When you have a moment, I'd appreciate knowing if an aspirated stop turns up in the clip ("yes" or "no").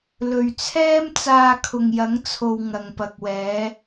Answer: yes